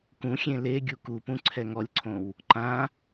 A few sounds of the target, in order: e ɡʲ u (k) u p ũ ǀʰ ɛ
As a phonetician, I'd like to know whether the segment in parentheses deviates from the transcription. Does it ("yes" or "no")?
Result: no